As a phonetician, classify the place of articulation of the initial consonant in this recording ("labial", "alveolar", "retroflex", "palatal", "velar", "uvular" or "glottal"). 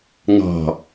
velar